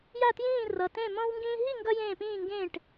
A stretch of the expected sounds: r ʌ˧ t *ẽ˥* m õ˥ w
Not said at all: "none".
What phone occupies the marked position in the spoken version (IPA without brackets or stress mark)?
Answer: ẽ˥˧